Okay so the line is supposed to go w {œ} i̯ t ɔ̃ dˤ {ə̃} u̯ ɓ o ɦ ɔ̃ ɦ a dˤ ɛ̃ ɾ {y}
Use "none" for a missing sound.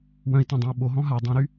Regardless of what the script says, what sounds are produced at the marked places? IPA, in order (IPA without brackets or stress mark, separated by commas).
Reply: œ̃, œ̃, y